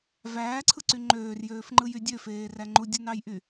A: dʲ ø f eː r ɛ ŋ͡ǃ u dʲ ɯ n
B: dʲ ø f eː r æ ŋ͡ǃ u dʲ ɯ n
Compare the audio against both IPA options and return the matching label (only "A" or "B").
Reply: B